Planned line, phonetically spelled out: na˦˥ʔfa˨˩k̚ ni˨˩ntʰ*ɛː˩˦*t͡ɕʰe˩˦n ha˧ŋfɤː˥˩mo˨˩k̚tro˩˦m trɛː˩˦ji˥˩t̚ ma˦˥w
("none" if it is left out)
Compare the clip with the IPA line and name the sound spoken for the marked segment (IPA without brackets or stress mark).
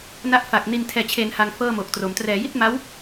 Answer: ɛː˩˦